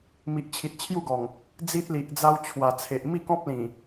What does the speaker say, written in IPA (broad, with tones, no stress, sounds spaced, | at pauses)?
m i˨ ʔ t͡ɕʰ i˨ t̚ t͡ɕʰ j u˥˧ ɡ ɔ˨˩ ŋ | d͡z i˦ t̚ l i˨ ʔ d͡z a˦ w t͡ɕʰ w a˨˩ t͡sʰ e˨ ʔ m i˥˧ k ɔ̃˦ p̚ l ĩ˨˩